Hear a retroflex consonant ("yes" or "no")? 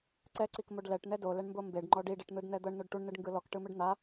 yes